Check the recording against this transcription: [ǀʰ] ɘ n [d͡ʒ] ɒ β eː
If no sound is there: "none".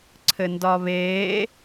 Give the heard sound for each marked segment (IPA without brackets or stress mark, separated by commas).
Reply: ǀʰ, d